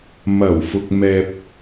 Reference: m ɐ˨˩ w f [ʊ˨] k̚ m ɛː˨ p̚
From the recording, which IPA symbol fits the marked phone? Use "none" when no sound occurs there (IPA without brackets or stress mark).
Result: ʊ˨